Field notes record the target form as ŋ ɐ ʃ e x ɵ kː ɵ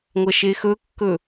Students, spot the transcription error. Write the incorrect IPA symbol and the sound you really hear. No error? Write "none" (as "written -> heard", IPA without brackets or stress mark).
ŋ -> ŋʷ